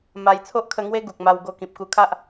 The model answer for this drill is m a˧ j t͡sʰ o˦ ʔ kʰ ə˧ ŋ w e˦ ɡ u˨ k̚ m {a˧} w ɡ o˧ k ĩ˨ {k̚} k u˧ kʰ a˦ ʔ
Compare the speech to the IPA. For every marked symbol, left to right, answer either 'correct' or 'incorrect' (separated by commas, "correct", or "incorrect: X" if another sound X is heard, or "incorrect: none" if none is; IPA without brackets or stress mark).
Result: correct, incorrect: p̚